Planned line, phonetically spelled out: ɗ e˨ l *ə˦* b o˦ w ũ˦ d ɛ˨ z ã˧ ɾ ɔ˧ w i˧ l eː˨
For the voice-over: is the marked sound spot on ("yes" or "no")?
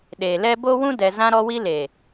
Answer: no